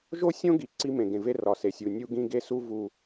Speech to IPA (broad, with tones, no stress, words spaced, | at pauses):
ʒo˦sʲõ˦ ɡi˨ ǀi˦mẽ˨ɡẽ˨ve˦ rɒ˨ se˨sʲu˨ nʲu˦ɡĩ˦ ɡe˦su˦ vu˦